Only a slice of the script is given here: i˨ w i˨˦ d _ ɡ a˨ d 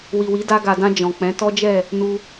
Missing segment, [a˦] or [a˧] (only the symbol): a˧